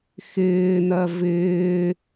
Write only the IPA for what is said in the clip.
x ɪː n̪ ɜ v ɪː

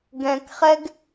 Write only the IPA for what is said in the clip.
ɡ ɛ̃ k χ ɛ ɡ

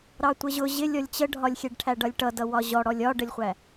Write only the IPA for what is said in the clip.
ɾ ɑ tʷ ə ʑ ʊ ʑ ɪ lʲ ɔ lʲ t͡ɕ ə ɖʱ ɒ lʲ xʲ ɛ ɖ ʈʰ æ ɖ ʌ lʲ ʈ ʌ d ʌ w ɒ ʑ ɔ ɽ ɔ lʲ ɒ ɖ ə lʲ χʷ æ

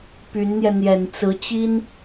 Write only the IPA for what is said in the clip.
p y˧˥ n n̪ j ɛ˧ n̪ j ɛ˨˩ n t͡s ɹ̩˧˥ t͡ɕ i˥ n

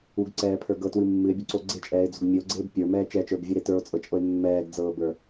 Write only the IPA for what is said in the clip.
u ɡ ǀ ɛː pʰ ə˞ ɡ ɤ t w ɨ mː ɨ e̯ bʲ o ǀ o ɡ͡ǀ e t͡ʃʼ ɛː e̯ d͡z o̤ ɡ mʲ ɨ o̯ ɡ͡ǀ eː b pʲ ə˞ m ɛː t͡ʃ ɛ t͡ʃ ə˞ b vʲ ɨ ɾ e t ə˞ o̯ t͡sʼ ɤ t͡ʃʼ ɤ e̯ mː ɛː ɡ d͡z ɤː b ə˞

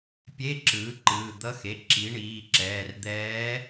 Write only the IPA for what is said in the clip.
pʲ e˧˥˧ ǁ ɯː˩˥ ǃ ɯː˩˧˩ d̪ ʌ˧˥ x e˩˧˩ ǁ i˩˥ ɳ iː˩˧˩ ǁ ɛː˩˧˩ r d̪ ɛː˧˥

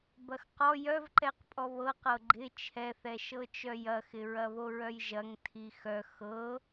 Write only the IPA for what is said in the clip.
b ɐ x q ɔ j œ v ǃ ɛ q pʼ ɔ β ɤ q ɤ ɡ͡ǃ ɪ t͡ʃʰ ɛ θ ɛ ʃ ɤ t͡ʃ œ j ɐ x ɪ ɹ ɐ β o ɹ œ j ʒ ɐ ŋ tʰ i x œ x ɤ

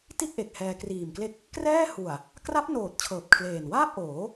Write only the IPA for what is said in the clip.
t i˥˩ t̚ ʔ e˨˩ k̚ h ɛː˧ k r iː˨˩ m k l e˦˥ k̚ | k r ɛː˥˩ h u˨˩ a̯ | k r a˦˥ p̚ n oː˨˩ t̚ t͡ɕʰ ɤː˨˩ p̚ kʰ l eː˨˩ n w aː˥˩ p̚ ʔ oː˩˦

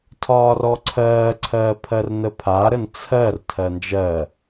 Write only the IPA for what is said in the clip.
tʰ ɒː r ɔ ǀʰ ɜː ǀʰ ɜː pʰ ɜ r n ə pʰ a ɾ ə n t͡sʰ ɜ r tʰ ɜ n d͡ʒ ɜ

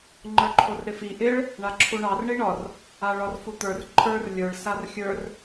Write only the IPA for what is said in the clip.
ŋ͡ǃ ə˞ ǃʰ o r ɾ ɪ f i ʔ ɪ ɭ | ɳ a ǁʰ u ɳ ɑ r ɳ i ɳ ɒ r | a ɭ ɒ r f u t̪ ə˞ r ǃʰ ə˞ r lʲ ə˞ ɭ s a r xʲ ə˞ r

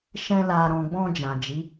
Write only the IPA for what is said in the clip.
ʃ ɛ̃˧ l a˨ ɾ ɔ̃˨ ɡ͡b ɔ̃˧ d͡ʒ ã˨ d͡ʒ i˨˦

